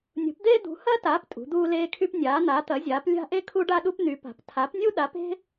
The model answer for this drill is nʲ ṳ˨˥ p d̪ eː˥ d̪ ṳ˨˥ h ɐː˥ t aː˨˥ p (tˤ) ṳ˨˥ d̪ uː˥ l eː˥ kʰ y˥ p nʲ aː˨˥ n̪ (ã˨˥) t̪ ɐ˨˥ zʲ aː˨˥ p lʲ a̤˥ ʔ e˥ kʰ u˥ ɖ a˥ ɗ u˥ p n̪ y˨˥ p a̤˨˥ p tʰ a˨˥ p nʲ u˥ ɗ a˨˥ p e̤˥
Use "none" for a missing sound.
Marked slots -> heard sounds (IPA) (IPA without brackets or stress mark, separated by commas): tʼ, a˨˥